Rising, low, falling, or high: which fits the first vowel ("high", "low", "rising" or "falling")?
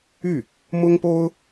falling